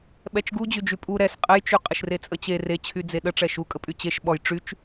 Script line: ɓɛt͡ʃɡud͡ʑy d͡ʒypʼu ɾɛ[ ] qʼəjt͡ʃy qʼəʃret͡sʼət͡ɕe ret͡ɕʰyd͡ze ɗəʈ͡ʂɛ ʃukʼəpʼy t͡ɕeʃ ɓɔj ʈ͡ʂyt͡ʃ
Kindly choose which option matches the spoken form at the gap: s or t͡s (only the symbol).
s